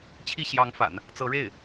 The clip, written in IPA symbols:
t͡ɕʰi˥˩ɕjɑ˧˥ŋfa̰˨˩˦n | t͡sɤ˧˥ɻe˥˩ɪ̯

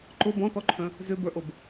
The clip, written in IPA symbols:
ǃʊ bɔ̃tɔǃʰœ̃ | zʏbə˞ʔob

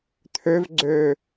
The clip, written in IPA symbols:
t̪ʰøvɡ͡ǀø

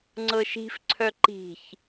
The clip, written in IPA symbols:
ŋ͡ǀɤʃi̤fǀʰœ ǃi̤ç

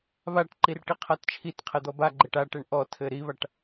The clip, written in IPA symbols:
βaʈǃir ʈiqʰatt͡ʃʰitqʰɛ d̪ɔbaɡ͡ǃɘʈ aʈɛɳ ʔɔtʰɘ ɾiβaʈ

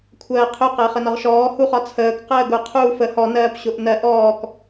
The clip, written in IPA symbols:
kʷʰɜːqʰʊ qəːχənɒʁʃɔː huχɒt͡sʰəːk qəːɡʊ qʰuːfə hɔnɜːp ɕʊʔnɜ ʔɔːk

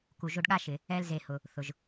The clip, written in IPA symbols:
ku˨ʒo˦ɖɠa˥ʃɪ˩ | ɛ˦lze˨hʊ˩ | θʊ˩ʒ

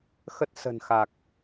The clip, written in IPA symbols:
xə˦˥t̚sə̤˨˩n xa˨˩k̚

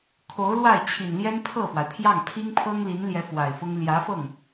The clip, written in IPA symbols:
kʰo˧˥ʊ̯lwa˥˩ɪ̯t͡ɕʰi˨˩n ljɛ˥npʰɤ˥˩fwa˩ɪ̯pʰjɑ˥˩ŋ pʰi˥ŋpʰɤ˥ŋli˧˥nljɛ˧˥ fwa˨˩ɪ̯fʊ˥ŋ ljä˧˥fɤ˥˩ŋ

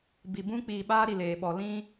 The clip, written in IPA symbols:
bi˨bũ˦k͡piː˨ ɓaː˦ ɾi˨leː˨ɓɔ˨ lĩ˦

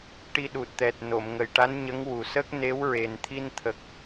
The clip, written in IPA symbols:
ʈi˧ɗu˨˩t̚t̪ɛ˨˩t̚ no˨˩˨mŋə˨˩jʈa˧˥nɲə˧˥ŋ wu˨˩sə˦˥k̚ ne˧˥wɹe˨˩n t̪ʰi˧nt̪ʰə˨˩k̚

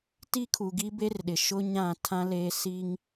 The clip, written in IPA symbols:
ti˦kʰu˨ɡi˦ be˦rɗɪ˨ ʃʊ˦ɲã˦˨ tʰã˦le˦ si˦ŋ

